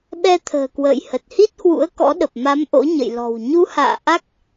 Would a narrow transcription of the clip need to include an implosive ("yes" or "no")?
yes